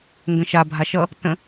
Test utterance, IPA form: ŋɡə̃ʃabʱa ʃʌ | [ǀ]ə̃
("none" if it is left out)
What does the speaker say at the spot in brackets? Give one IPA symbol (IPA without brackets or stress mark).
t